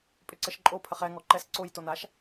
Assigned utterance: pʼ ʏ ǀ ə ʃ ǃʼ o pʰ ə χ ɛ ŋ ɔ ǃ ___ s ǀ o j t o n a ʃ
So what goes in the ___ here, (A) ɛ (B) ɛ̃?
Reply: A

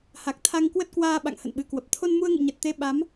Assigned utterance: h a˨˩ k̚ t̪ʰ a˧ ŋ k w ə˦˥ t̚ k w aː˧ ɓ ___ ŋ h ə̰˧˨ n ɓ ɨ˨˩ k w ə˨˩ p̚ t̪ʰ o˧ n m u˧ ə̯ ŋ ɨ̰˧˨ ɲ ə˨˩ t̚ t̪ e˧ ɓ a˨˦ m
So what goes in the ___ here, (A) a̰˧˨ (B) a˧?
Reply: A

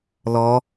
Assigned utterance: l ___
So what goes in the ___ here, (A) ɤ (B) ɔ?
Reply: B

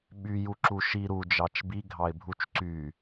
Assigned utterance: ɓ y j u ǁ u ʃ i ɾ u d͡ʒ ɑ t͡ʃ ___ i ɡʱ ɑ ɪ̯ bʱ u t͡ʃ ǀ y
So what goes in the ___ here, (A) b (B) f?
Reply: A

